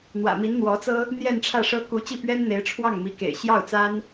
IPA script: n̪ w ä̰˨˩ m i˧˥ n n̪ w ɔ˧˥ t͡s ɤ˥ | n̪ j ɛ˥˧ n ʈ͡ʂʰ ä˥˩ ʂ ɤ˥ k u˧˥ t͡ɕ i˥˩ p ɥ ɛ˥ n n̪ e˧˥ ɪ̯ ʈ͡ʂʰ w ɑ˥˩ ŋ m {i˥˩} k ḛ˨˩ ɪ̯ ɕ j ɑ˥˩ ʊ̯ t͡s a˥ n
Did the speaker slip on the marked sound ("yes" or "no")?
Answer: yes